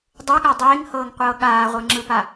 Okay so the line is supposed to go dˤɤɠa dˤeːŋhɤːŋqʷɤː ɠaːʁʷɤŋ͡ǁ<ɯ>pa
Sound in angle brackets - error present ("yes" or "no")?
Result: no